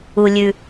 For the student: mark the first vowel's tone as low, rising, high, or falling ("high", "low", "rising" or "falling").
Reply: low